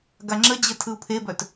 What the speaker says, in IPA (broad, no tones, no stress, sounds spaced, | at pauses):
ɡ a ŋ͡ǁ ə d͡ʑ ə tʰ ɯ u̯ pʰ e b œ t